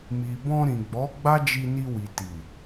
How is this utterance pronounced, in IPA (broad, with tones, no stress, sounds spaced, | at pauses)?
m i˨ b ɔ̃˧ ɾ ĩ˨ ɡ͡b ɔ˨˦ ɡ͡b a˦ d͡ʒ i˧ n i˧ w i˨ t i˨